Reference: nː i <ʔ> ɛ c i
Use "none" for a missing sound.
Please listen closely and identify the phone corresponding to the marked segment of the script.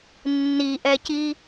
ʔ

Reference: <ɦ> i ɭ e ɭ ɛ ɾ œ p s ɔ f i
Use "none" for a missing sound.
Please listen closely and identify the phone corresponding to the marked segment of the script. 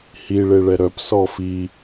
h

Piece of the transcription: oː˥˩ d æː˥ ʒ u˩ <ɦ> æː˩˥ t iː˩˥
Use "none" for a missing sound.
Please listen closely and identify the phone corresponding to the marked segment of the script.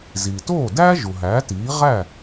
ɦ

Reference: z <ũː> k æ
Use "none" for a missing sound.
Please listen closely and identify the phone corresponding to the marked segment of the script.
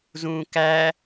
ũː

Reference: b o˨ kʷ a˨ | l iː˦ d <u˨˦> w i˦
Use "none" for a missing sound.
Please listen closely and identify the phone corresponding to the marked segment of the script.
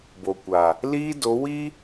o˨˦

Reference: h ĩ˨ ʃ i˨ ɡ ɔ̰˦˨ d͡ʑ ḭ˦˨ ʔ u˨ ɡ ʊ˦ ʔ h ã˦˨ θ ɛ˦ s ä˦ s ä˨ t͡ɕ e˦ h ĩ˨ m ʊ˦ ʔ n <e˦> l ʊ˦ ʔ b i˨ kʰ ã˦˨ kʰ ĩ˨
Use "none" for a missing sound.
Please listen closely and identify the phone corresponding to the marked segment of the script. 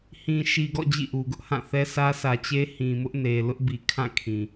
e˨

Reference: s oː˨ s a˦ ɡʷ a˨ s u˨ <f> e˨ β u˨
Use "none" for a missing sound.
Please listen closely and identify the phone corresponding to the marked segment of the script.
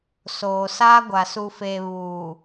f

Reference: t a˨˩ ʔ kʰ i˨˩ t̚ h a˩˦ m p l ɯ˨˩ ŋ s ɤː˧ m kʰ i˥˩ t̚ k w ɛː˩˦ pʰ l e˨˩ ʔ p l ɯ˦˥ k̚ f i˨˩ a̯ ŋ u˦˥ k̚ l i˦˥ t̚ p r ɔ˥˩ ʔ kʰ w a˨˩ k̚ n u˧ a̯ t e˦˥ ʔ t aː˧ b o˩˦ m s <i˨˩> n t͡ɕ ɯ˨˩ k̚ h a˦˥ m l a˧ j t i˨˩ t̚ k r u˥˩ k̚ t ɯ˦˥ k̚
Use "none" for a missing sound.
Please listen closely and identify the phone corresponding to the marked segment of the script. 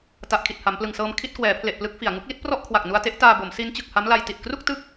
i˦˥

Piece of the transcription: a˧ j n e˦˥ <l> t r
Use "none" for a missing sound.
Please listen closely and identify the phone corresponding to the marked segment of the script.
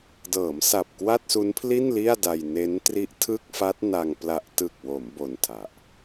n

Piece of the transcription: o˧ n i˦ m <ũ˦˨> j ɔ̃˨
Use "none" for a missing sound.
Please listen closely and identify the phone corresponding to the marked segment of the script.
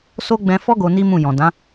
ũ˦˨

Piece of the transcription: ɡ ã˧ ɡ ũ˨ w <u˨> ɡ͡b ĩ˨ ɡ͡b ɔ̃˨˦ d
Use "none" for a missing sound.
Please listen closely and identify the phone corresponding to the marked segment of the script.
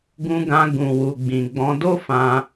u˨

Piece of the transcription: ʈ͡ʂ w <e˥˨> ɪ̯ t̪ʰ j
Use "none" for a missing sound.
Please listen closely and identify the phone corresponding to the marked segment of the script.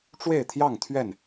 e˥˨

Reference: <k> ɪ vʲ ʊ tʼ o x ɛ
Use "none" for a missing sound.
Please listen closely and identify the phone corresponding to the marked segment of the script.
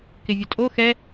k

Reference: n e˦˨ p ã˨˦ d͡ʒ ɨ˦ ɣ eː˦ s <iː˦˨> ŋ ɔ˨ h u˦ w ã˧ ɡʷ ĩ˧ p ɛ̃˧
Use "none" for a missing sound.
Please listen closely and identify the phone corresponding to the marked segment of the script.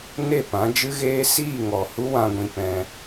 iː˦˨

